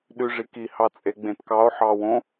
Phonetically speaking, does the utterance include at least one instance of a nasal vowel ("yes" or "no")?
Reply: yes